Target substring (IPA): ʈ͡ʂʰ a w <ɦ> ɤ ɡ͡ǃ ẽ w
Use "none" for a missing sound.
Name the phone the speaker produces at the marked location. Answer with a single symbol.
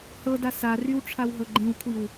ɦ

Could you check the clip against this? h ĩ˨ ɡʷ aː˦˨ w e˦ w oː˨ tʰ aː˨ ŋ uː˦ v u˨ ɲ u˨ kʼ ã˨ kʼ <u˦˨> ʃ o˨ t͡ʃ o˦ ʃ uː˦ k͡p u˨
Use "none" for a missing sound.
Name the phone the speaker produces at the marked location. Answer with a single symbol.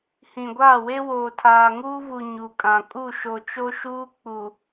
u˦˨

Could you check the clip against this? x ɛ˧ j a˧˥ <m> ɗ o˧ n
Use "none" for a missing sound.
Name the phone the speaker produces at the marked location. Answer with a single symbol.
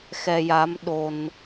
m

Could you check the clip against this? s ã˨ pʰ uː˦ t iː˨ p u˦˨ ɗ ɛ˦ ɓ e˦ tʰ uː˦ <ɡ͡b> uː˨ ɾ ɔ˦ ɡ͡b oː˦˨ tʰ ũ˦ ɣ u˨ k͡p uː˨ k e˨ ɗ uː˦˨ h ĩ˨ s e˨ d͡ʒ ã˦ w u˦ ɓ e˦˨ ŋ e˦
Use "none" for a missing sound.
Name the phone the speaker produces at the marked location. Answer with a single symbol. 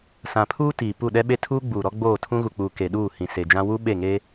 ɡ͡b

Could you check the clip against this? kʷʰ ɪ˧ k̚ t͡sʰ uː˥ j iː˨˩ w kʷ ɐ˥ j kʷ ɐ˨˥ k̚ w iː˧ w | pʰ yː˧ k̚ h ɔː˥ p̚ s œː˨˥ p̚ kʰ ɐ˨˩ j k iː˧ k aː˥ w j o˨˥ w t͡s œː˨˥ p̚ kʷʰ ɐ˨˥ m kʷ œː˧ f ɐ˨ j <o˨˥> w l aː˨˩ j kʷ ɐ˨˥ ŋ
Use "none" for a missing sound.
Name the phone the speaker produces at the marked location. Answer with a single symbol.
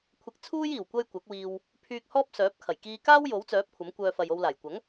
o˧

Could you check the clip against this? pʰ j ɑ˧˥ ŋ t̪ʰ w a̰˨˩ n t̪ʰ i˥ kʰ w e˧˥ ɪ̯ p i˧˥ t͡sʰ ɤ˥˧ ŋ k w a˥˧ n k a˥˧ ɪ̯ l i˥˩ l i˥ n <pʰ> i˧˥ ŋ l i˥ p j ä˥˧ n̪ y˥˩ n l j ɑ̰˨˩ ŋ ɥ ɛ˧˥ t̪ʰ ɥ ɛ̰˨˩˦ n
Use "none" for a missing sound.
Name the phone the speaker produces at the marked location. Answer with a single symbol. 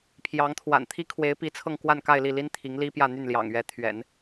t̪ʰ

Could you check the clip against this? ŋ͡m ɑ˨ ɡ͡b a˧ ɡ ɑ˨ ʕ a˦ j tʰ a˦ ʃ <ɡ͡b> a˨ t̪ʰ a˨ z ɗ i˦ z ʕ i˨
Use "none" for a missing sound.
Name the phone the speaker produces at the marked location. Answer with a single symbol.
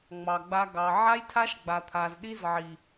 ɡ͡b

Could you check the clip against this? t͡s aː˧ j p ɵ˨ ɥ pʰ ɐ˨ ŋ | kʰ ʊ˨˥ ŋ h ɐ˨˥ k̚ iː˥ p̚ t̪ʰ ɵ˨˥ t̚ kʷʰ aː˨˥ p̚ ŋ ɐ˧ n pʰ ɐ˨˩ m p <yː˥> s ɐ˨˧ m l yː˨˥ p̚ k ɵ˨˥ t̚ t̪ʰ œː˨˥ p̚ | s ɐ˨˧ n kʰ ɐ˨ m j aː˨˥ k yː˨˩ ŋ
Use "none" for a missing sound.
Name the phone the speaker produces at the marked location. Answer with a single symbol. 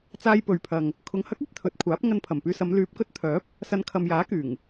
yː˧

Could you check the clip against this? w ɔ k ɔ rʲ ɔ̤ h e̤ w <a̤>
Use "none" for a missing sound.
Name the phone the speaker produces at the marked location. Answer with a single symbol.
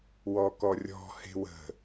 ə̤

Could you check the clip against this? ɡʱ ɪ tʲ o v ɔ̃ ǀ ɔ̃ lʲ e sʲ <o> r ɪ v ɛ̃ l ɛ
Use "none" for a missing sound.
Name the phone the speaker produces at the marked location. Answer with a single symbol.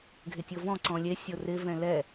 o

